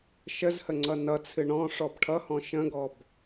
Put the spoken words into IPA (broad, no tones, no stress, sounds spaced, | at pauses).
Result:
ʃ ə z h ə ŋ͡ǀ ʌ n ʌ t͡sʰ ɨ ɳ ɔ̃ ʂ ɔ b ʈʰ ʌ h ɔ̃ ʃ ə̃ ɡ ɔ b